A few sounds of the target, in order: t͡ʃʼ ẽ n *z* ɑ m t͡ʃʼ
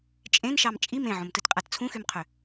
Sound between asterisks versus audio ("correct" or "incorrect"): incorrect